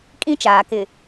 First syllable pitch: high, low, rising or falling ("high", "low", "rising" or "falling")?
high